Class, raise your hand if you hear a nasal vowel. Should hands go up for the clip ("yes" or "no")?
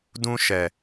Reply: yes